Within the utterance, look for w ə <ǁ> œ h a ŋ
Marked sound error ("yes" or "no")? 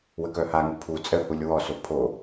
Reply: yes